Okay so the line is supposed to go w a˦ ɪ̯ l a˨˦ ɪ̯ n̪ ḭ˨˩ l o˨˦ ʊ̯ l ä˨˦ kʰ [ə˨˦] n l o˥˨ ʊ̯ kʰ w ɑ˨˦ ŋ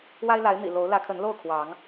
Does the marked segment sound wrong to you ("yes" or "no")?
no